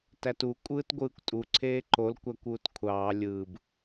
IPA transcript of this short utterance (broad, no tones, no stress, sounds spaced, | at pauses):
t æ t u kʷʼ ɯː t ɡʷ ɯː kʷ tʼ u ǀʰ eː ǃ o l kʷ æ kʷ uː t kʷʰ ɑː lʲ ɯː b